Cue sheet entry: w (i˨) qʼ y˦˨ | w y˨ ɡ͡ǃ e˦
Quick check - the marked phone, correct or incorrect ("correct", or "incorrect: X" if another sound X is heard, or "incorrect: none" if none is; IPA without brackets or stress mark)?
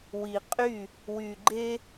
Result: correct